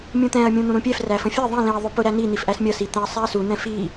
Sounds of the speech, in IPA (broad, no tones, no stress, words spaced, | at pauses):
mʲũt̪ɛ̃ɐ̯ mʲũn̪ũɾũpʲɛf ræfə̃fʲɛ ðˤĩ lĩɐ̯ ðˤʊpʊ ɾæni n̪ifʔæsmʲʌ sit̪ɛ̃ɐ̯sˤæɐ̯su n̪ɛ̃fi